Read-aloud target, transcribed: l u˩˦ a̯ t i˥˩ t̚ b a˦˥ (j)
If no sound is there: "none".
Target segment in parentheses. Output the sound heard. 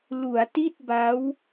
w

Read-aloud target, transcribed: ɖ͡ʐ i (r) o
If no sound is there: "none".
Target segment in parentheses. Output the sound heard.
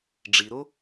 ɾ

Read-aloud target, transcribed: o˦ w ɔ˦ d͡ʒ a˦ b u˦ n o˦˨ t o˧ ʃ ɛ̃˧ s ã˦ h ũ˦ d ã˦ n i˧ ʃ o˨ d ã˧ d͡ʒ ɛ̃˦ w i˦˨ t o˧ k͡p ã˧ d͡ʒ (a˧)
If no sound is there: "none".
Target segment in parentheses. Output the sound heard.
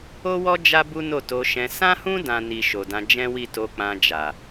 a˨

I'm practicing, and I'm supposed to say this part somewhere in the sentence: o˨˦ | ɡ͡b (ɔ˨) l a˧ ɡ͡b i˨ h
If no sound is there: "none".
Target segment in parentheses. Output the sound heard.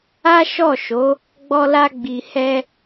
ɔ˧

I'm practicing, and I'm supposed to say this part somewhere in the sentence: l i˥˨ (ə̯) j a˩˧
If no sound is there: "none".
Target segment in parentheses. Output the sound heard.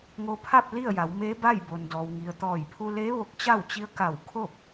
ə̯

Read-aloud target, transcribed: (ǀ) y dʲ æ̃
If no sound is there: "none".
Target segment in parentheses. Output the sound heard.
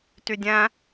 t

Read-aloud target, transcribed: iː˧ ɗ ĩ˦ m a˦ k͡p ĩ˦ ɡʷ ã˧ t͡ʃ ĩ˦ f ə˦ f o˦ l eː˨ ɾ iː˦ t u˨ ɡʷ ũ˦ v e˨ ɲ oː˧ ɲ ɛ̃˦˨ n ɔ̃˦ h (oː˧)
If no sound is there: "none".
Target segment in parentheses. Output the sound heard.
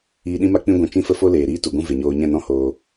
oː˧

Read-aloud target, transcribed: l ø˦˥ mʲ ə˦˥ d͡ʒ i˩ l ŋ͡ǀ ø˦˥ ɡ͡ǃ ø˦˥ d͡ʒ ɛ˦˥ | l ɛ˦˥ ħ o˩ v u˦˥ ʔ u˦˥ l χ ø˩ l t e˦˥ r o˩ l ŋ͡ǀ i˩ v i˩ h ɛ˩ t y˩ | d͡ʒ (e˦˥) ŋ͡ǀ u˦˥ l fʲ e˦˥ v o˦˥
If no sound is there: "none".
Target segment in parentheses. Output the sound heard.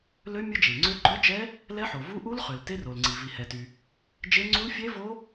e˦˥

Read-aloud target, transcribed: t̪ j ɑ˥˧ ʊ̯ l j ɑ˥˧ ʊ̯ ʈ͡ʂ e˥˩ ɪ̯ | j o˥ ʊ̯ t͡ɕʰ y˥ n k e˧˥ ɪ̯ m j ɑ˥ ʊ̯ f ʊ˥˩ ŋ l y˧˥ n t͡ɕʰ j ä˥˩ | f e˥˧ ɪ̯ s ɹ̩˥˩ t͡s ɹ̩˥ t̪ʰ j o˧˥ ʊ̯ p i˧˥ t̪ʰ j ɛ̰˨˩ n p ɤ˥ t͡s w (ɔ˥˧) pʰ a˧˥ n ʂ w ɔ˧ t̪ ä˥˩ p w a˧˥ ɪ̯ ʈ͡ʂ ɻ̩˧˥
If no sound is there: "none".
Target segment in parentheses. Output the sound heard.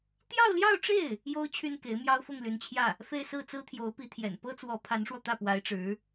ɔ˧˥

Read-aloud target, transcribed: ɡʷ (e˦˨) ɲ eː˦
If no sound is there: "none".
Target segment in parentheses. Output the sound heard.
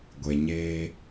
e˨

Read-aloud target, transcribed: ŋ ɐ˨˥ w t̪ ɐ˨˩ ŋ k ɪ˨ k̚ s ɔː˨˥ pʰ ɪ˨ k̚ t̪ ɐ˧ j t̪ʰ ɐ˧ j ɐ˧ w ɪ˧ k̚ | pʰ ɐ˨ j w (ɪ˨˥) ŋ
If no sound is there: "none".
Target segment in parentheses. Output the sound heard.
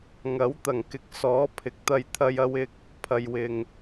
ɪ˨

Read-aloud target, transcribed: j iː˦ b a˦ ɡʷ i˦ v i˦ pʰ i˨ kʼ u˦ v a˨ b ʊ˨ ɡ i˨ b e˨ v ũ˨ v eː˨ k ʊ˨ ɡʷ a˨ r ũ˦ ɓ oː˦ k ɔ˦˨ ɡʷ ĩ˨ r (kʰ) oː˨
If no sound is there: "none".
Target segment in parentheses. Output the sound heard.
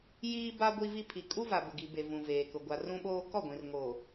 ŋ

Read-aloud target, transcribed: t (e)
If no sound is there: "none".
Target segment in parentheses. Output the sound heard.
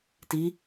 i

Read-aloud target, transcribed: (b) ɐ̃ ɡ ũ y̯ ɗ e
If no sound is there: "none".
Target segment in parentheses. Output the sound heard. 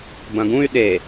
b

